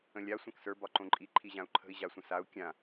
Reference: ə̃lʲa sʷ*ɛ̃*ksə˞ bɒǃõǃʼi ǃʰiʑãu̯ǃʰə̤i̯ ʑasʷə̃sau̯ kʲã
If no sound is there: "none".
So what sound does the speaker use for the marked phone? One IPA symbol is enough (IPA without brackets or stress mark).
ɛ̃